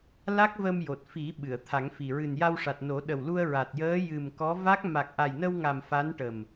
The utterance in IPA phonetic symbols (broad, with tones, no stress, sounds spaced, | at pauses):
l a˦˥ k̚ v ə˧ m j o˨˩ t̚ f i˨˩˦ ɓ ɨ˨˩˨ ə̯ t̪ʰ a˨˩˦ ŋ f i˨˩ ɹ ɨ˨˩ n j a˧ w ʂ a˨˩ t̚ n o˨˩˦ ɗ ə˨˩ w l u˧ ə̯ ɹ a˨˩ t̚ j əː˧˥ j ɨ˨˩ m k ɔ˧˥ v a˦˥ k̚ m a˨˩ k̚ ʔ a˨˩ j n ə˧ w ŋ a˨˩ m f a˧˥ n ʈ ə˨˩ m